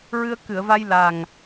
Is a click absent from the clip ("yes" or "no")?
yes